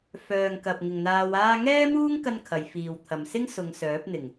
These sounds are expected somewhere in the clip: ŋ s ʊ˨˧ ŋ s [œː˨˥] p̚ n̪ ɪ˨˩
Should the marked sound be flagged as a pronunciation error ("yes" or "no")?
no